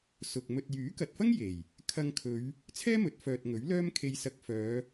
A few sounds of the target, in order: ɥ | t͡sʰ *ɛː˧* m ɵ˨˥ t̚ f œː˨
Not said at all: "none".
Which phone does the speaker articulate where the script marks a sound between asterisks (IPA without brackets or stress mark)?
ɛː˥